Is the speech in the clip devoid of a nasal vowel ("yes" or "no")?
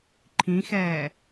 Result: no